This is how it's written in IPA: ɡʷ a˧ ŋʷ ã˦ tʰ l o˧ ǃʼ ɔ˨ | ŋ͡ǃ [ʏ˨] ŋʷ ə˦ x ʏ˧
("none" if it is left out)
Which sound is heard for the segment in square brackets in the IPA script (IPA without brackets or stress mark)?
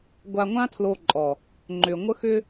ʏ˨